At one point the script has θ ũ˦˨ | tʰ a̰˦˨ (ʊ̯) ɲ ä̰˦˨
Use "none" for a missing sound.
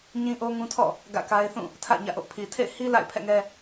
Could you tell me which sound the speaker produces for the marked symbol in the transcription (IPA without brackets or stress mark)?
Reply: ɪ̯